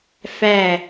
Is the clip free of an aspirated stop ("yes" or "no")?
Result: yes